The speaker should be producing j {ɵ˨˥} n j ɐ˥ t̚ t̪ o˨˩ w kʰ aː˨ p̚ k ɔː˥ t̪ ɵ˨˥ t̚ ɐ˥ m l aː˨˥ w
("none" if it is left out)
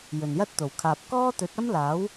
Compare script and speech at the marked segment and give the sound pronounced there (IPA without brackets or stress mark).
ɵ˨˩